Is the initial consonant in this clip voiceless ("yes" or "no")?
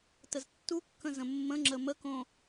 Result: yes